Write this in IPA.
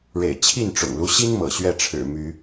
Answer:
ɻḛ˨˩ɪ̯t͡ɕʰi˥˨n ʈ͡ʂʊ̰˨˩ŋlu˦ɕi˦n mɤ̰˨˩ɕɥɛ˥˨ʈ͡ʂʰɻ̩˨˩ my˨˦

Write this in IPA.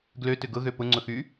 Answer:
ɡløtʏ ɡʊɣø pʊŋ͡ǀʊxy

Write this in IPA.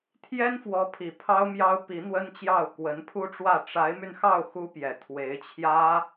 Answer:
t̪ʰjɛ˥nfwɔ˧˥pʰi˨˩ pʰɑ˥ʊ̯mjɑ˥ʊ̯ pi˧˥n̪wə˥nt͡ɕjɑ˥˩ʊ̯ kwə˧˥npʰu˥ʈ͡ʂwä˥˩ ʈ͡ʂa˧˥ɪ̯my˧nxɑ˥˩ʊ̯ xu˥pjɛ˨˩ t̪ʰwe˧˥ɪ̯t͡ɕʰjä˥

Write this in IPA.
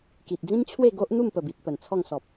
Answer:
ki˨t̚d͡zĩ˦mt͡ɕʰwe˥˧ ɡo˦ʔn̪u˥˧m pə˨˩bi˨t̚ pə˨˩nt͡sʰɔ˥˧ŋ sɔ˨p̚

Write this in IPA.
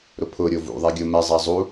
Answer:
ɾʊpʰʊɾʲo vṵ ðˤɛɡʲomɛzˤa zˤu

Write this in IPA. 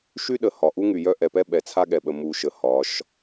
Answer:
ʃy˦ɗə˨ hɒ˨ ʔu˦ŋy˨jœ˦ ʔɛ˨pɛ˦ ɓɛ˨t͡sʰa˦ɠɛ˨ɓə˨ mu˨ʃə˨ hɒ˨˦ʃ

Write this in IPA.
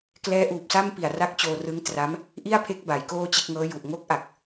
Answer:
klɛː˦˥ʔuː˨˩p̚sa˥˩mpi˨˩a̯ ra˦˥k̚t͡ɕoː˧rɯ˦˥ŋ tra˦˥m | ʔi˥˩a̯pʰe˦˥k̚ ba˩˦j koː˥˩t͡ɕe˥˩k̚ ŋɤː˦˥ju˨˩ʔ ŋo˦˥k̚ʔa˨˩k̚

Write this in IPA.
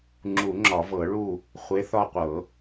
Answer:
ŋ͡ǁu˨˩˦ŋ͡ǁɒ˨˩˦ vɤ˨˩˦ɭu˦˨ | χʷe˨˥ θɒ˦˨qʷɤ˨˩˦

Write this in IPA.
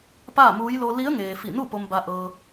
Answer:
paː˥˨muː˧˥j lo˧li˧˥ə̯ŋeː˩ fi˧˩nu˥˨po˧m ba˧ʔɤː˧

